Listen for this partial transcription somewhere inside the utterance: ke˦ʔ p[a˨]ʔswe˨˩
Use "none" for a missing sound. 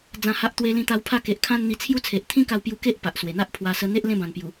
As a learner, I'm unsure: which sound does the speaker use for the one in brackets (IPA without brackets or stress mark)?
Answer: a˨